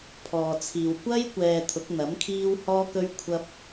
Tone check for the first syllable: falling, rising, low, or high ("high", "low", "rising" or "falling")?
low